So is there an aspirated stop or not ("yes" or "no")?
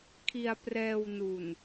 yes